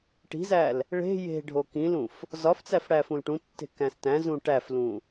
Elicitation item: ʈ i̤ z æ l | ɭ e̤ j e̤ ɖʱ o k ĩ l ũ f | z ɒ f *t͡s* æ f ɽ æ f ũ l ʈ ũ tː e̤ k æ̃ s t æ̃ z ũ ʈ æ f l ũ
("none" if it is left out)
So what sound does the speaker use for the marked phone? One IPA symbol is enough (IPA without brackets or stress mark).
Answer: t͡s